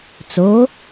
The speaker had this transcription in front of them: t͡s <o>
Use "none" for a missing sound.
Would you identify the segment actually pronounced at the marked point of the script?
o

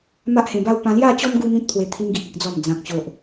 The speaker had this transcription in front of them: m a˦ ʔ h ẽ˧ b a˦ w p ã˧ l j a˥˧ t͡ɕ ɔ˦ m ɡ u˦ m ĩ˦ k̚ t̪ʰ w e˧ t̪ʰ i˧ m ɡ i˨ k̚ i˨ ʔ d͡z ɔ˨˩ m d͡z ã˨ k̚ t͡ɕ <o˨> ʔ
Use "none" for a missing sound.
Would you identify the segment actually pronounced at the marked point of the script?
o˨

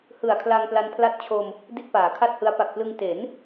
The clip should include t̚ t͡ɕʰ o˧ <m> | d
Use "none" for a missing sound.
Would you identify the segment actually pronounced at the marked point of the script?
m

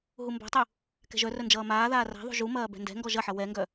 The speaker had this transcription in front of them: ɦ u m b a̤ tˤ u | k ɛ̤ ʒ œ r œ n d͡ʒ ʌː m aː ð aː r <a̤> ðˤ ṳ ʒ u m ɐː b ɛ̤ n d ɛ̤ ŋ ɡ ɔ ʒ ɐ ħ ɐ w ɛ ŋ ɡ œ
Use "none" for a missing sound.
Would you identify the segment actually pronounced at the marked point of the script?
a̤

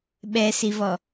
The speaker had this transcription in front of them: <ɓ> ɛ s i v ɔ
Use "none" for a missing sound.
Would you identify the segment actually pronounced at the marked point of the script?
ɓ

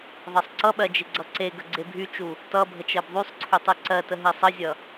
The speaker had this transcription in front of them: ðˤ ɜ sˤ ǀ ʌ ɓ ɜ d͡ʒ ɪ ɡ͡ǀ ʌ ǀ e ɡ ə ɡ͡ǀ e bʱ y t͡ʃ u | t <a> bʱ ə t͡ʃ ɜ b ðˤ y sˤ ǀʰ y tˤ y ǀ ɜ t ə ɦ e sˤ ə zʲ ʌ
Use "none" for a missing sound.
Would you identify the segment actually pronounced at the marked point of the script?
ʌ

